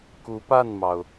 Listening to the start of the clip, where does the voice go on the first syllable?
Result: rising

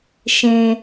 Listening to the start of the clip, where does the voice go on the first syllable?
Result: low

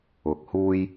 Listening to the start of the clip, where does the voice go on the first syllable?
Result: low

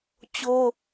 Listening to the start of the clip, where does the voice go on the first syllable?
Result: high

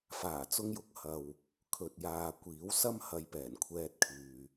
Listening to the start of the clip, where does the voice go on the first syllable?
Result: low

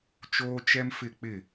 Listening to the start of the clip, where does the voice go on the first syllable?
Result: high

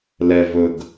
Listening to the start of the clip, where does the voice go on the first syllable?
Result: low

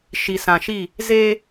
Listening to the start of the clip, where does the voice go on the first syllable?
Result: low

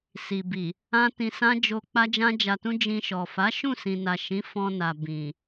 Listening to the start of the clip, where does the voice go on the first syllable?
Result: low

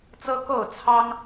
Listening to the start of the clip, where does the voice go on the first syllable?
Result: high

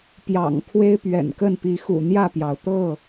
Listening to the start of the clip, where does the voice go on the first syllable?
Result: low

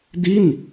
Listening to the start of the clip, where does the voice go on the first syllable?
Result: falling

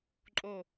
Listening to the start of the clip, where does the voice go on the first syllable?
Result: falling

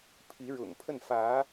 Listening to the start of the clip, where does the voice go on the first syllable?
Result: rising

